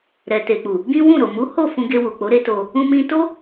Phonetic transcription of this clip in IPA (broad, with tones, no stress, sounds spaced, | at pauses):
ɾ ɛ˨ t e˨ k͡p u˨ | ɡ ĩ˦ w ũ˦˨ ɾ o˨ m u˨˦ h o˦˨ f ũ˧ ɡ e˧ w u˨ k͡p o˨˦ ɾ e˦ t o˧ | ũ˧ m ĩ˧ t o˦